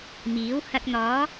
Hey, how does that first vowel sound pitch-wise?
rising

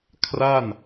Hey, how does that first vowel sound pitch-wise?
falling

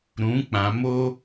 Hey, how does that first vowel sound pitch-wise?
rising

